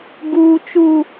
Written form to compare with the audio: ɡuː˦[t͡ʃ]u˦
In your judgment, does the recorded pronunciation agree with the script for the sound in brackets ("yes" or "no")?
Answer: yes